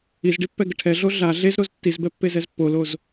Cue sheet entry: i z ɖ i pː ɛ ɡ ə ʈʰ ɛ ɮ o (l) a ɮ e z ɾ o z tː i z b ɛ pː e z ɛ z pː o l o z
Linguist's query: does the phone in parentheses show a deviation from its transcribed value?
yes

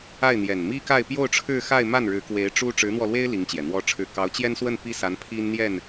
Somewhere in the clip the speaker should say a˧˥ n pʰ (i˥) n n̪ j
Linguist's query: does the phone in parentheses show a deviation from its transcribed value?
no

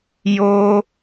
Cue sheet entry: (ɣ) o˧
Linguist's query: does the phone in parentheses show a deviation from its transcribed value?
yes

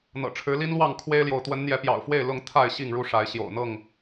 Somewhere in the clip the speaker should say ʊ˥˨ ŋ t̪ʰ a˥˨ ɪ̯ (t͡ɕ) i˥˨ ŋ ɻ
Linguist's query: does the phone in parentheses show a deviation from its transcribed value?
yes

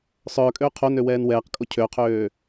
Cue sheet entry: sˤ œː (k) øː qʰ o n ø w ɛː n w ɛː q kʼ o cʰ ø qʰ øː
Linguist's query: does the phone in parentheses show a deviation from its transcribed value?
yes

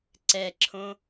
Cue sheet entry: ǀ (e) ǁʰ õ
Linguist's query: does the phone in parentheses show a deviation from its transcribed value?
yes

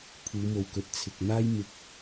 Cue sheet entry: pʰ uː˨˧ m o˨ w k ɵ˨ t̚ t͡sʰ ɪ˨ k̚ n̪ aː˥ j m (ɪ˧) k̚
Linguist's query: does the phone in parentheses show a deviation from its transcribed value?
no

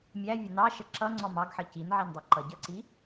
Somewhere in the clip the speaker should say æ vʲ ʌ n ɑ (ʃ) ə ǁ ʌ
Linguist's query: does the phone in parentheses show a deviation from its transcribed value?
no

